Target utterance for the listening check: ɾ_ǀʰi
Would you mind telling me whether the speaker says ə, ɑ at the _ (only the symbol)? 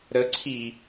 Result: ə